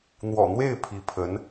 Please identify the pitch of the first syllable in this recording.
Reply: low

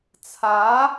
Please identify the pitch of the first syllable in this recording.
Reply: rising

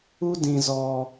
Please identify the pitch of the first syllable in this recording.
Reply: high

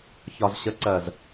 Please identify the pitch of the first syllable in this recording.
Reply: low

